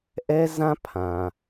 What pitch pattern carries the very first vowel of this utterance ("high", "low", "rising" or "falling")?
high